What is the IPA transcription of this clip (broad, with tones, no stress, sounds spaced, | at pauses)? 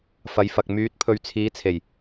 f ɐ˨˧ j f ɐ˨ k̚ m yː˨˥ t̚ pʰ ɵ˨ ɥ t͡sʰ iː˨˧ t͡sʰ e˨˩ j